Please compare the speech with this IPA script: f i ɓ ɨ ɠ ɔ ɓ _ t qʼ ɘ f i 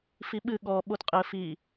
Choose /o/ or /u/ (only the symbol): o